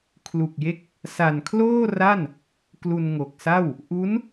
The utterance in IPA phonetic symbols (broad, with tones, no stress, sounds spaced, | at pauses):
kʰ l u˨˩ k̚ j e˦˥ k̚ | s a˨˩ n kʰ l oː˥˩ r a˥˩ n | k l u˧ n ŋ o˨˩ k̚ s a˥˩ w | ʔ u˦˥ n